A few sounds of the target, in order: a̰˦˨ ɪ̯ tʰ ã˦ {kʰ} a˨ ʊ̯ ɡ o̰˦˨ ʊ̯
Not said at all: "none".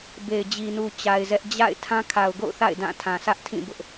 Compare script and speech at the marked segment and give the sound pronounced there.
kʰ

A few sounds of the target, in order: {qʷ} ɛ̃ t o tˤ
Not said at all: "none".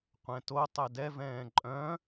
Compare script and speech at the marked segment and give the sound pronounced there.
qʷ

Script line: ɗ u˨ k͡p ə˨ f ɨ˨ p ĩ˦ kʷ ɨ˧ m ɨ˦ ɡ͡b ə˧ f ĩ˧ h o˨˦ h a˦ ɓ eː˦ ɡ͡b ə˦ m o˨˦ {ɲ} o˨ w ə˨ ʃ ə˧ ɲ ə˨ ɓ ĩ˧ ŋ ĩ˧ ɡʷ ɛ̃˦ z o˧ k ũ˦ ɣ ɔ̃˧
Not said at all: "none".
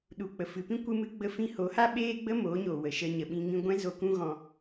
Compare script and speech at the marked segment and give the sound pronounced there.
ɲ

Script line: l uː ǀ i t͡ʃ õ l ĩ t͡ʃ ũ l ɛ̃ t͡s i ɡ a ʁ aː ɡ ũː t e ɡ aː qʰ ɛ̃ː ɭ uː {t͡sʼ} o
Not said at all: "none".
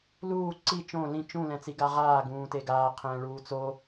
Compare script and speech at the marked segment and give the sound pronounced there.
t͡s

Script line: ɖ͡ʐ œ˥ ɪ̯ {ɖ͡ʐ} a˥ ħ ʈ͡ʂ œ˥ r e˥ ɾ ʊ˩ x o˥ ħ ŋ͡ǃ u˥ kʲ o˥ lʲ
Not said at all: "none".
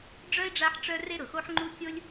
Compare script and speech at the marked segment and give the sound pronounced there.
ɖ͡ʐ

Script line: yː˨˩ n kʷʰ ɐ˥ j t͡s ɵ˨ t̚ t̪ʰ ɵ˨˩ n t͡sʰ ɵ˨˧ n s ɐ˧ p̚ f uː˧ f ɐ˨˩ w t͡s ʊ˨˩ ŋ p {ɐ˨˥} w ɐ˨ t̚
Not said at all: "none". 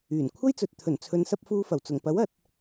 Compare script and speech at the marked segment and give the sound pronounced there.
ɐ˨˥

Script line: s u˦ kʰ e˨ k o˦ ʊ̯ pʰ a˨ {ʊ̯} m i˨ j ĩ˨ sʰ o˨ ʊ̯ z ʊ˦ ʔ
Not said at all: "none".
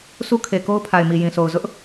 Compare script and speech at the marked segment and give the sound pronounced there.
ɪ̯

